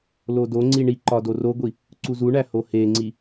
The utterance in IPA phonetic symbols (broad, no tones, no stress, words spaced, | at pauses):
lodoŋ͡ǀi ɳiǃɒ doroɡʷi | ǀuzuɳæ hoheŋ͡ǀi